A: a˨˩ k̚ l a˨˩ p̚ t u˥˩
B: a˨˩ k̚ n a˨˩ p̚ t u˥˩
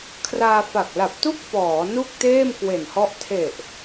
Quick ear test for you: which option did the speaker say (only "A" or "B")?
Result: A